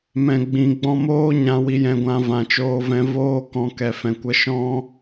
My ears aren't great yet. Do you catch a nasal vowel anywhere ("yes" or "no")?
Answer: yes